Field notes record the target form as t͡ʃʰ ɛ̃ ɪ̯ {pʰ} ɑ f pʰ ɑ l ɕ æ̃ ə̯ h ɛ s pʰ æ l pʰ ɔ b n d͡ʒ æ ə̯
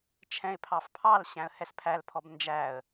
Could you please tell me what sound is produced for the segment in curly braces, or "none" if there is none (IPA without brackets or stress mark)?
pʰ